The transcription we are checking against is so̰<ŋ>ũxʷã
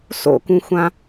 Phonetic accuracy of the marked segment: incorrect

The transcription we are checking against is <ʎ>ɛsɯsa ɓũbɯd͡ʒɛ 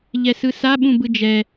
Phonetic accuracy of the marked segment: correct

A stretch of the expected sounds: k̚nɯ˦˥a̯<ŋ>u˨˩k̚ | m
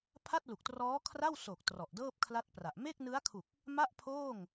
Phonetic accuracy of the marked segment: incorrect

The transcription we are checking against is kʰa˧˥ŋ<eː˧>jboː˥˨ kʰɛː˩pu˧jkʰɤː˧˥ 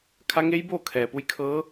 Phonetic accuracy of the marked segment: incorrect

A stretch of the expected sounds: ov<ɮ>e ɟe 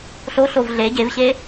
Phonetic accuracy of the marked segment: correct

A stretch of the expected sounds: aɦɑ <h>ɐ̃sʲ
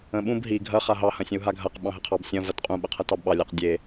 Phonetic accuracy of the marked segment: correct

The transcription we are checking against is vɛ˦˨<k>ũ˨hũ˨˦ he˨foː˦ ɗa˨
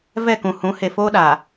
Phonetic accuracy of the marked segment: correct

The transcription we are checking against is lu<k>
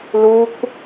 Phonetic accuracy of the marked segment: correct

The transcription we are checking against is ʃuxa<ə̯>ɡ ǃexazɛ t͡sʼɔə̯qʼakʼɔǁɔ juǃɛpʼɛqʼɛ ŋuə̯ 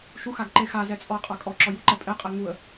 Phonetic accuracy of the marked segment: incorrect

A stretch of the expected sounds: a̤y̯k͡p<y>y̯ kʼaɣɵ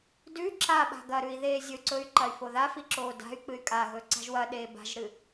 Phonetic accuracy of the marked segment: incorrect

